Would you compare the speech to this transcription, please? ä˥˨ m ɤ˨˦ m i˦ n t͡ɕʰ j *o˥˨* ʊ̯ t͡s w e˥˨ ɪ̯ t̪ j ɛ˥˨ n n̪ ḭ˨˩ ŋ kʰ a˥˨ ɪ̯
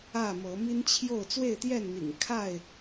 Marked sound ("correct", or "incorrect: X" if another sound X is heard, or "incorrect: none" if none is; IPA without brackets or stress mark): correct